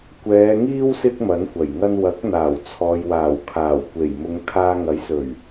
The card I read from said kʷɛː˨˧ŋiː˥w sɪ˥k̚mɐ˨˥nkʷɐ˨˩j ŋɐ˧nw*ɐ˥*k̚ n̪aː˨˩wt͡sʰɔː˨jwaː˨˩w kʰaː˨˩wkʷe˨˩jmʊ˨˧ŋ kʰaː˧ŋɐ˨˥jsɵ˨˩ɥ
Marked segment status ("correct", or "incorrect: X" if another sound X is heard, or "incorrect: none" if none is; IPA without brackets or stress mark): incorrect: ɐ˨˥